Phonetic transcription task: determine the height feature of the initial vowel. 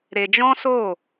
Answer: mid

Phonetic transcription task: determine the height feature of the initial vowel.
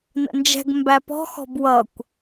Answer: mid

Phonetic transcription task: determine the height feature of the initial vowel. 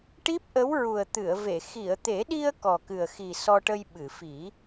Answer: high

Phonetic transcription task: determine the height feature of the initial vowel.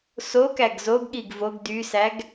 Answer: mid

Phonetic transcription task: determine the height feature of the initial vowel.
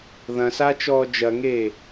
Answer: low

